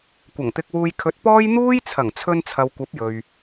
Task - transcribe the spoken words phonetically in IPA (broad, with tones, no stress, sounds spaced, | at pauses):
kʷ ɐ˨˩ ŋ t̪ ɪ˧ k̚ w uː˧ j kʰ ɵ˨˥ t̚ p ɔː˥ j n̪ uː˥ j t͡sʰ ɐ˨˩ ŋ t͡sʰ ɵ˧ n t͡sʰ ɐ˨ w kʷ ɐ˨˥ p̚ j ɵ˨ ɥ